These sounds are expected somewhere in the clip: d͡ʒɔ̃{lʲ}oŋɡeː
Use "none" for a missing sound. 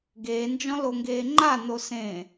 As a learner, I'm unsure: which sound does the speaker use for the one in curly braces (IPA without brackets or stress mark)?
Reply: l